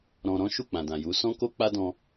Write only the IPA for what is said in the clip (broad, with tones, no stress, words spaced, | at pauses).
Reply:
ɾɔ̃˧ɾɔ̃˦ ʃu˦˨k͡pã˨dã˨ju˨˦ sɔ̃˦ko˦ k͡pa˦dɔ̃˧